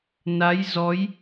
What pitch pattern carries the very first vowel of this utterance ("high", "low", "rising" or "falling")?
rising